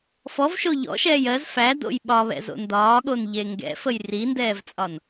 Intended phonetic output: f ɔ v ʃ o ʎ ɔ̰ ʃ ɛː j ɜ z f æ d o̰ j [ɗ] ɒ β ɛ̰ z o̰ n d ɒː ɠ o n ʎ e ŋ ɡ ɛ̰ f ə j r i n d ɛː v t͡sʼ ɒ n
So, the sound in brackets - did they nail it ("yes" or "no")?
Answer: no